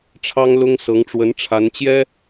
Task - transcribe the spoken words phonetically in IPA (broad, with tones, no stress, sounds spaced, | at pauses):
ʈ͡ʂʰ ɑ˥ ŋ l ʊ˥ ŋ s ɤ˧˥ ŋ ʈ͡ʂ w ə˧˥ n ʈ͡ʂʰ a˧˥ n t͡ɕ j ɛ˥